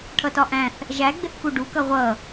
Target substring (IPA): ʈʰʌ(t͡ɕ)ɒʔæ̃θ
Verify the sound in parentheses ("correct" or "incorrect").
incorrect